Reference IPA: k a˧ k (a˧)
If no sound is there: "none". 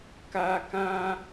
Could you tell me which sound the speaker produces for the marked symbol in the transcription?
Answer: ã˧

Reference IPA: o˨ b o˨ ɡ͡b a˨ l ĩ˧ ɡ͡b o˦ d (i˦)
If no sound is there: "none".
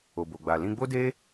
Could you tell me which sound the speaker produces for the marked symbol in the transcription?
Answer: e˦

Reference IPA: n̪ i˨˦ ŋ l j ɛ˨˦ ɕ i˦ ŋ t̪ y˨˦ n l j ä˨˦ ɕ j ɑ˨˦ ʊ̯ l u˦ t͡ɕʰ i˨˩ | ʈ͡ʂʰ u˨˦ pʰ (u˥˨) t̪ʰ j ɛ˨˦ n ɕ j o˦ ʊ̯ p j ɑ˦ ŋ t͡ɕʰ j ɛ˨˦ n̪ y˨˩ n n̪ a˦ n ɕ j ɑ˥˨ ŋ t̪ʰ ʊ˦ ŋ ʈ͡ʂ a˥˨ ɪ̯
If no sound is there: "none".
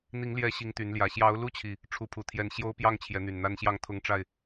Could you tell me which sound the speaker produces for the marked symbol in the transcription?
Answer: u˨˩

